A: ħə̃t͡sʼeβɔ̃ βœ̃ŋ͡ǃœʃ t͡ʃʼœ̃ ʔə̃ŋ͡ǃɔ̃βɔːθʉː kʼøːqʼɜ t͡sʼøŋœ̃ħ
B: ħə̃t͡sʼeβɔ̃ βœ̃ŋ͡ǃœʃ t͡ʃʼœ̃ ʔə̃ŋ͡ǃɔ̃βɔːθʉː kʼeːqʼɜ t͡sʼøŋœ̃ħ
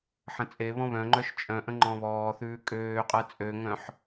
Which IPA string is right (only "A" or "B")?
A